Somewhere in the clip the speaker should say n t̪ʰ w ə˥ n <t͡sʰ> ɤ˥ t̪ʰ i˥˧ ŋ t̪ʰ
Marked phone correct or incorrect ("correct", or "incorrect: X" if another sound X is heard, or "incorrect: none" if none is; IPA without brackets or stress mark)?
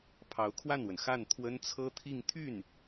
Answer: correct